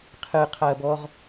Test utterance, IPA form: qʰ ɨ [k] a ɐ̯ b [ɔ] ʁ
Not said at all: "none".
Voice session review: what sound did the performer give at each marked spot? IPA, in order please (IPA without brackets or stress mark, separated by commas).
qʰ, ɔ